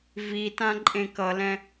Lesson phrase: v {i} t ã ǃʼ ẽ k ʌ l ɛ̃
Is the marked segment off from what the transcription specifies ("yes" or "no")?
no